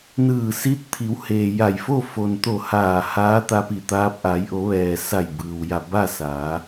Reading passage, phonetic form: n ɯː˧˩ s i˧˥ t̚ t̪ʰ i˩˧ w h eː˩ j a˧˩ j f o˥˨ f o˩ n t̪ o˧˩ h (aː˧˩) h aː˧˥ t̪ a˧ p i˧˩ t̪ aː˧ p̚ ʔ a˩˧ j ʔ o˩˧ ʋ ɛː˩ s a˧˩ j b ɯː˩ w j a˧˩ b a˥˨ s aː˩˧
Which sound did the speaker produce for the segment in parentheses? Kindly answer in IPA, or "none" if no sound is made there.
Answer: aː˧˩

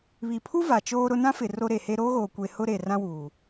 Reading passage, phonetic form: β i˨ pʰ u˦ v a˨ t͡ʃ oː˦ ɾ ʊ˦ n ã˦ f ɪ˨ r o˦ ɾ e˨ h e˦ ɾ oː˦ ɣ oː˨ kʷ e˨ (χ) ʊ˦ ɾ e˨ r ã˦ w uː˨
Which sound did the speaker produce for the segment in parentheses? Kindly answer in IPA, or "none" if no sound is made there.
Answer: h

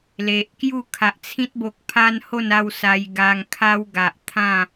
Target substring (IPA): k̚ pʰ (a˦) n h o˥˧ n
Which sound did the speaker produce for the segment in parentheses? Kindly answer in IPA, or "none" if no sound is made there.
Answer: a˦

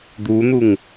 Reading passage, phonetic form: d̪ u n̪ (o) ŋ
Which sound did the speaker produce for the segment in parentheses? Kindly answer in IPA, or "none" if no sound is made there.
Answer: u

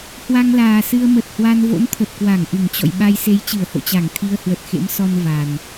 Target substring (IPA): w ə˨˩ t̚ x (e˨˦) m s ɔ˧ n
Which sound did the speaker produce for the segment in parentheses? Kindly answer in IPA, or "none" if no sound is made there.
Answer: ḛ˧˥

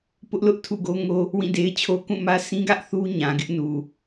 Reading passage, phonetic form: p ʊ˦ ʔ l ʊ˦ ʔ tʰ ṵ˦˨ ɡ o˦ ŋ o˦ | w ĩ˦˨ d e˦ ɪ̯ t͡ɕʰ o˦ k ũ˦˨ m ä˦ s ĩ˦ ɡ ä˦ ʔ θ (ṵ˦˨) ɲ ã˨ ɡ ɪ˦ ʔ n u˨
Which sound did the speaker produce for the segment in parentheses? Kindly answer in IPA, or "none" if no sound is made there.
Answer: u˦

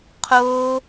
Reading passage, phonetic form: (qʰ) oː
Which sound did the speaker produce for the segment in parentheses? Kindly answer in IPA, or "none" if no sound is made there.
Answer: qʰ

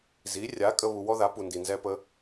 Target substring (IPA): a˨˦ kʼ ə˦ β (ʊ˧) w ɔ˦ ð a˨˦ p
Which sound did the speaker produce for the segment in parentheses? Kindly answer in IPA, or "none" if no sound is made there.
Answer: u˧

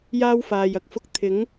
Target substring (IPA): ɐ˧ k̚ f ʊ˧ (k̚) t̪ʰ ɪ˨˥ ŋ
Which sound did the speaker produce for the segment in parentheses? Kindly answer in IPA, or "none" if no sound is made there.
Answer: k̚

